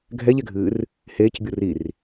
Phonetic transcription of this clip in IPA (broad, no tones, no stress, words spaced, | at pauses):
ɡʱɛʎɛɡʱɨːr | heːcbʲu rir